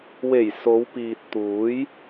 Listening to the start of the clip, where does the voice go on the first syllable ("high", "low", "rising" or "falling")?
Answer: low